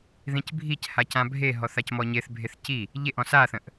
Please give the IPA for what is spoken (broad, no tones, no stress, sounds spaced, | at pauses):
ð ĩ c bʱ i c h a c ã bʱ e ɦ ɔ θ a c m ɔ ɲ e θ bʱ e θ c i | ʎ e ʔ ɔ̃ s a θ ə̃ ʔ